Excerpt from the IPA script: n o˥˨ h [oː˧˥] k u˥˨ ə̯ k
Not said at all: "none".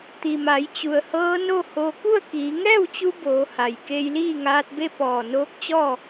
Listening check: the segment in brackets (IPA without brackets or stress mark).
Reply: oː˧